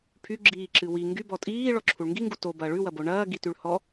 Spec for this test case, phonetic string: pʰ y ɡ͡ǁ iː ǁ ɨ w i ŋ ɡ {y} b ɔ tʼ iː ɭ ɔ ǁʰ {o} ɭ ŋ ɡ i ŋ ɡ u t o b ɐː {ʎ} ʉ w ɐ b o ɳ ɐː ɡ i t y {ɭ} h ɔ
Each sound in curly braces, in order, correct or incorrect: correct, incorrect: u, incorrect: ɭ, correct

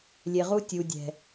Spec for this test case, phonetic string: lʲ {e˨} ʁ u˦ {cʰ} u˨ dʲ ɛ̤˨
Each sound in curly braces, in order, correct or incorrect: correct, incorrect: tʲ

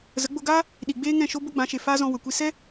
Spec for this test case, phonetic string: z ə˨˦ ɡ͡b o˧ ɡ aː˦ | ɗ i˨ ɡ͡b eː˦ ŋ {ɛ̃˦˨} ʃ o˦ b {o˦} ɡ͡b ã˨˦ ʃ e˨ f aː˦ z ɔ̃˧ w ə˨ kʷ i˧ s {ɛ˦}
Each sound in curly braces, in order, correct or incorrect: correct, correct, correct

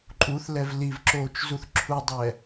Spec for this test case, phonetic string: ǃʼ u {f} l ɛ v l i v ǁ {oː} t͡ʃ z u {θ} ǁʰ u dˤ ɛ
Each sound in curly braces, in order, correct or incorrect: incorrect: θ, correct, correct

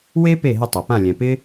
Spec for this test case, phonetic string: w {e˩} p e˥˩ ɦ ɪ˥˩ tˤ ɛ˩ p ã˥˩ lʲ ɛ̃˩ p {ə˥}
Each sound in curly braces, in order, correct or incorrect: incorrect: e˥, incorrect: ɪ˥

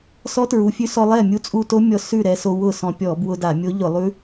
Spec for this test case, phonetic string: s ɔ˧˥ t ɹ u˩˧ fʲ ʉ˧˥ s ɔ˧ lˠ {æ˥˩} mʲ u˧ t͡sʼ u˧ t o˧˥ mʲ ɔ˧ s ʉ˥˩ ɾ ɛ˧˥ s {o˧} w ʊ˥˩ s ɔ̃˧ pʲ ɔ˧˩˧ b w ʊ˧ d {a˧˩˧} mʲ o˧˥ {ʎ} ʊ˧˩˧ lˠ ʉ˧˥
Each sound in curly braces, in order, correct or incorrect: incorrect: ɛ˥˩, correct, correct, correct

